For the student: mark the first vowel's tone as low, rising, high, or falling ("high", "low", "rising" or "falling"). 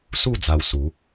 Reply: falling